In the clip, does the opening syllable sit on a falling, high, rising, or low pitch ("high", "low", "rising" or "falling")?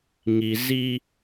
low